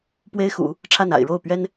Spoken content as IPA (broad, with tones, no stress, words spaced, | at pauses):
pwe˥ɪ̯xṵ˨˩˦ | ʈ͡ʂʰa˥˩na̰˨˩ɪ̯ ɻo˥˩ʊ̯pɥɛ˥n